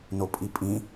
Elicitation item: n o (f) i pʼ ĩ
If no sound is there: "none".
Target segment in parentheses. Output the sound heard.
pʼ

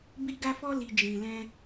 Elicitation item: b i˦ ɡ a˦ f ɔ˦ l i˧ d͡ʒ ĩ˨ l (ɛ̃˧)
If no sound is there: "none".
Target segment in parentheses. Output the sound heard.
ɛ̃˧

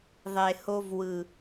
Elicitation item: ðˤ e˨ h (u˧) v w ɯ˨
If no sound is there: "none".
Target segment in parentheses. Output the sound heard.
o˧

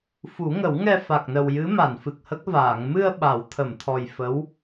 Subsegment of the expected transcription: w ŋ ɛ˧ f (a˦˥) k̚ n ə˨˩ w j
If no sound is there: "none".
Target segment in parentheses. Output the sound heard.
a˨˩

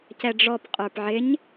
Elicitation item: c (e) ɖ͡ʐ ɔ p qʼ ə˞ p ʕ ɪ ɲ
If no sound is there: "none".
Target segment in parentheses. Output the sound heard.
ɛ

